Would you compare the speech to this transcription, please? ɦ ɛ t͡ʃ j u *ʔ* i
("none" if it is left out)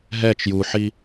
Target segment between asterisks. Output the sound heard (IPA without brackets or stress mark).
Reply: ħ